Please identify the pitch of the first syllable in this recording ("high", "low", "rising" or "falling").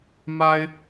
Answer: high